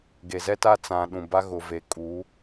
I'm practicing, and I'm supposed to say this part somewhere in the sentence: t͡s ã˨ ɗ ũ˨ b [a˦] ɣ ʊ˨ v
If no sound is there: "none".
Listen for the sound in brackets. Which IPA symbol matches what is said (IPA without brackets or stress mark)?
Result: a˦